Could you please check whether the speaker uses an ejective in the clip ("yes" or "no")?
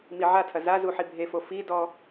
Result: no